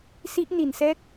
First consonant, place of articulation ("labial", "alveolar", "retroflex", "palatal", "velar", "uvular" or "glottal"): alveolar